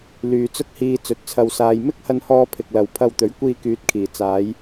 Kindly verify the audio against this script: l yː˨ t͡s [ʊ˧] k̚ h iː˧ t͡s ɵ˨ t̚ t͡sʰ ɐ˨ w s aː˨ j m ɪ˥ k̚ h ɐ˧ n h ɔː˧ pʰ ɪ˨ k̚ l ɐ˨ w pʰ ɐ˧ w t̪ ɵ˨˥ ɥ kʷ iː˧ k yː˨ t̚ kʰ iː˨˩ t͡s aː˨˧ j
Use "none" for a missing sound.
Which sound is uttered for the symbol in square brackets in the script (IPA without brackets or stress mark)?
ʊ˥